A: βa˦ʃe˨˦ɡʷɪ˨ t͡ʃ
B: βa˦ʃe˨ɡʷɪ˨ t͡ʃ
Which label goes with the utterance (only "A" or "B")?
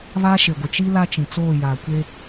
B